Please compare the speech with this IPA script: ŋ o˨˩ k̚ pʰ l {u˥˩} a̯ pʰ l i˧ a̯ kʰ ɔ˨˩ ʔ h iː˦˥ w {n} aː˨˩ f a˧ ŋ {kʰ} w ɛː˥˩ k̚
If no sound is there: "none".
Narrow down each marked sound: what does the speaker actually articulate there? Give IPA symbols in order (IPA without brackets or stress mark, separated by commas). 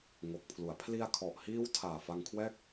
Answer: u˩˦, tʰ, kʰ